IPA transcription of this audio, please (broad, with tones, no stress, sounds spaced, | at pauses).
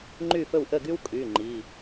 ŋ͡ǃ y˥˨ f ɵ˥˨ w ʔ ə˥˨ ɡ y˥ w kʼ y˩˧˩ ŋ͡ǃ i˩˧˩